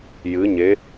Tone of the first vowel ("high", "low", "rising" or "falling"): rising